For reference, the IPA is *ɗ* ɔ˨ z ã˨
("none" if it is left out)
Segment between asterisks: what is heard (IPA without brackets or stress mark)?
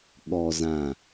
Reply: ɠ